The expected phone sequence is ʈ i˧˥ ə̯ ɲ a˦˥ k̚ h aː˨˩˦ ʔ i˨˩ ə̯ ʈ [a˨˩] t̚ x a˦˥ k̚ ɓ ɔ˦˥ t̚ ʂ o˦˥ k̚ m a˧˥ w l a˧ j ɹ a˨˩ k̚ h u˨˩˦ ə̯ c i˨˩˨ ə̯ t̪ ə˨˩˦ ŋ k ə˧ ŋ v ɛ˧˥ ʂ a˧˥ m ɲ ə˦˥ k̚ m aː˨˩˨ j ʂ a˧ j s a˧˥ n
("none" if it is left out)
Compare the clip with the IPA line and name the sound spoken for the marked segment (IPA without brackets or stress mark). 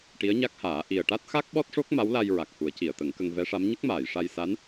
a˦˥